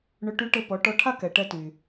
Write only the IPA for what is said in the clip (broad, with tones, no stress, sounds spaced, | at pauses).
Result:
ɳ ɵ˧ ʈ y˧˥ ʈ ɘ˧ p ɔ˩˧ ʈ ɔ˧ ʈʰ a˥ k ɛ˩ ʈ ɛ˧ t y˩